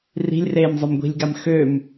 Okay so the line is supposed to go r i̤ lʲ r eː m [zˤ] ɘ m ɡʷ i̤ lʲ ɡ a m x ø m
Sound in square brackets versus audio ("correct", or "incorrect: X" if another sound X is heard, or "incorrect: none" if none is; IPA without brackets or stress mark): correct